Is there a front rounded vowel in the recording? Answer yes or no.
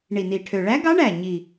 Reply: yes